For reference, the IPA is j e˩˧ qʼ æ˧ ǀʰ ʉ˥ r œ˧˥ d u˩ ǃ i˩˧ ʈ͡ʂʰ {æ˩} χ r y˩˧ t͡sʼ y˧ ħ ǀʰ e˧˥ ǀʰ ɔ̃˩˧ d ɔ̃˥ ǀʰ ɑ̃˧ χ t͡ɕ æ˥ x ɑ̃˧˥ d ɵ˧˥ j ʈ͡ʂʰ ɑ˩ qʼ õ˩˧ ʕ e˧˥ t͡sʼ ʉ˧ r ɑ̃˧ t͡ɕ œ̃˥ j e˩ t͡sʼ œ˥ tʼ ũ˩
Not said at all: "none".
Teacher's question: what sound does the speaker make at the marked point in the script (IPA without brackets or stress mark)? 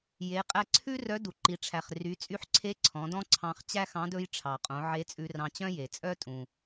æ˩